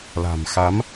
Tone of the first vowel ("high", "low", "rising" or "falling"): low